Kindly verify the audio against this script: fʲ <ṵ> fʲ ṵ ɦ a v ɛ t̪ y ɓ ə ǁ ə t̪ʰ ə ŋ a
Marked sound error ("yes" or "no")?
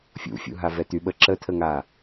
no